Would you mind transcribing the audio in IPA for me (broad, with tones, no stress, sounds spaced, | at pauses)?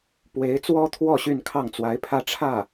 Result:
p w e˧˥ ɪ̯ t͡s w ɔ˥ t̪ʰ w ɔ˥˧ ɕ y˥˧ n kʰ ɑ˥˩ ŋ t͡s w a˧˥ ɪ̯ pʰ ä˥˧ ʈ͡ʂʰ ä˥˩